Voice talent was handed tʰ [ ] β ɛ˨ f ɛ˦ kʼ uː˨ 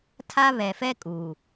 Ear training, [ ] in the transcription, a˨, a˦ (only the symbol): a˦